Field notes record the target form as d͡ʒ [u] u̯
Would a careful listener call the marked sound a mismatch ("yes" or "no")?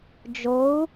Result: yes